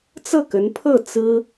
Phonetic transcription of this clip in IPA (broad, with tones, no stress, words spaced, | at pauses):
t͡sɤ˥˩kə˧˥npʰɤ˥˩ t͡sɹ̩˥